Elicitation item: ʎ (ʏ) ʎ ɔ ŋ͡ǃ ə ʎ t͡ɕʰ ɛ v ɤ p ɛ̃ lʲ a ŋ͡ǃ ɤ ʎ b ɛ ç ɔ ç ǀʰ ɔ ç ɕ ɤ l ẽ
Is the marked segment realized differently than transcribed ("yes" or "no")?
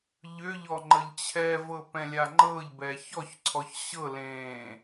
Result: no